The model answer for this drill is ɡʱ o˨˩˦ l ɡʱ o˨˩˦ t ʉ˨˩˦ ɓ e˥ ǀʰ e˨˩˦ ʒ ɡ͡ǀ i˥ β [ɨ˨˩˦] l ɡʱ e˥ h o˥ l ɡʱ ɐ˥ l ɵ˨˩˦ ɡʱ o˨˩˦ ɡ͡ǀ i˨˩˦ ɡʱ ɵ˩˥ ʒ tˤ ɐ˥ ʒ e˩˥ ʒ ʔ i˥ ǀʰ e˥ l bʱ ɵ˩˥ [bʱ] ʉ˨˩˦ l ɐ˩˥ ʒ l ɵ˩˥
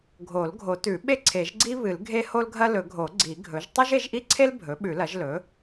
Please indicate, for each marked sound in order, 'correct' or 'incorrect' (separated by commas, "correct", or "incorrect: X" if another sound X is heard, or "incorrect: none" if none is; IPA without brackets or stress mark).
correct, incorrect: ɓ